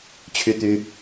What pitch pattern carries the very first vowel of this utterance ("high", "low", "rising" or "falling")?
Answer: high